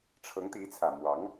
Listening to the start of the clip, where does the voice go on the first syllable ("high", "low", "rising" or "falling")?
rising